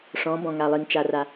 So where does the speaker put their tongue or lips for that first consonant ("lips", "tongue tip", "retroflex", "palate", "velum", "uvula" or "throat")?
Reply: retroflex